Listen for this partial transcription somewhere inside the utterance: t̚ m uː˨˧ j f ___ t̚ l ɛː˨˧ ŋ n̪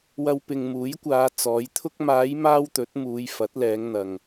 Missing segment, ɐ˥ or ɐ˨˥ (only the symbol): ɐ˨˥